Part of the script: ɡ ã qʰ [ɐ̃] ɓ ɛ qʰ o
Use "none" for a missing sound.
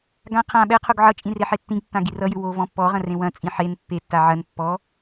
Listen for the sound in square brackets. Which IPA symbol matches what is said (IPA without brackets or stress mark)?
ã